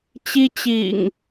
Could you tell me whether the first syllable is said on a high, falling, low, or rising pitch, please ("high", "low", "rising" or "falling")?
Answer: high